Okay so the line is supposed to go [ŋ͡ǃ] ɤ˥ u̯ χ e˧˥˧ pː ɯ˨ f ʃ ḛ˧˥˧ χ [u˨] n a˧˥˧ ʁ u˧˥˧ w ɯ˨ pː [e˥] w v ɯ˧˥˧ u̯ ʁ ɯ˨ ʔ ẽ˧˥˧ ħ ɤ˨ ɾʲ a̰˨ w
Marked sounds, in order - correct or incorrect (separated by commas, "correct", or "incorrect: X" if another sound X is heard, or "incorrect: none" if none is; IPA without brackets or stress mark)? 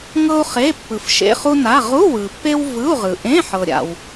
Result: incorrect: ŋ, incorrect: u˥, correct